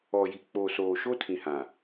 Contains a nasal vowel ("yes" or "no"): yes